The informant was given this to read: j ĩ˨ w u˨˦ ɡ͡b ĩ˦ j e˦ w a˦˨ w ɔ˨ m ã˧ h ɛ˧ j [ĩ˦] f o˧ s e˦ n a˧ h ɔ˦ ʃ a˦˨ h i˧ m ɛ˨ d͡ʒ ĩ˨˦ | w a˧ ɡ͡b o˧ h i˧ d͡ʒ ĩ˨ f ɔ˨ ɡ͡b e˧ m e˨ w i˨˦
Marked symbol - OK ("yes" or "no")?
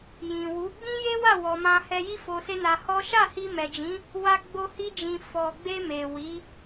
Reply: no